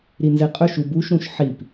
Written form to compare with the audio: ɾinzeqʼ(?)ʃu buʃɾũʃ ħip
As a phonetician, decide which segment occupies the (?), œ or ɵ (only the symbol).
ɵ